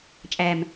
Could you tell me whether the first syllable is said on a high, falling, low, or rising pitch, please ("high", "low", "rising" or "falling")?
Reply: low